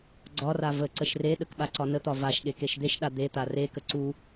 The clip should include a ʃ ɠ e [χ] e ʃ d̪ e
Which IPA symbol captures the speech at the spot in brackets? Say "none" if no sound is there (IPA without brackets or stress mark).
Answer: k